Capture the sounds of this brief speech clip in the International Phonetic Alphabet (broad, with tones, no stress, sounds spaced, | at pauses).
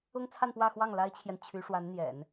ʊ˥ ŋ t͡sʰ a˥˧ n p w ä˥˧ x w ɑ˥˩ ŋ l a˥ ɪ̯ t͡ɕʰ j ɛ˨ n t͡ɕʰ y˧˥ ʂ w a˧˥ n n̪ j ɛ̰˨˩˦ n